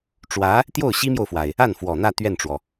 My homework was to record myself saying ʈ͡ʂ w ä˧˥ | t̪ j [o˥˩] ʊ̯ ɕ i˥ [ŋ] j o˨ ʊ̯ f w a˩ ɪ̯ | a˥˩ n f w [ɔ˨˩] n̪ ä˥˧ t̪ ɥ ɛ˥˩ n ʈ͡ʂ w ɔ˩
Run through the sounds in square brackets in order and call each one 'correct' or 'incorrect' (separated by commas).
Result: correct, incorrect, correct